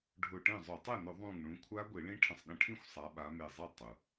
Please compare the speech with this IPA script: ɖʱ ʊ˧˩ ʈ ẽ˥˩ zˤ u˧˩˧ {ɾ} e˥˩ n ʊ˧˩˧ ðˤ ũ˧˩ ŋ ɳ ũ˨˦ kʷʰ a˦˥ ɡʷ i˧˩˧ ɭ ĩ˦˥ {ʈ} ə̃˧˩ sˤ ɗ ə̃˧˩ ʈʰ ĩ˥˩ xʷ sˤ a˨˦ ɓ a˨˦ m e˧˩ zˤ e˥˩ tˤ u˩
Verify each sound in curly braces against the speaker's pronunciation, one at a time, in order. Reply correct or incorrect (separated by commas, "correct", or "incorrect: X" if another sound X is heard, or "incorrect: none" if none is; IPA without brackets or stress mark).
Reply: incorrect: tˤ, incorrect: ʈʰ